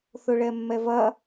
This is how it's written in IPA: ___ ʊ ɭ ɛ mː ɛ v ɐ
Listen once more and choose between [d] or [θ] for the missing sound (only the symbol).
θ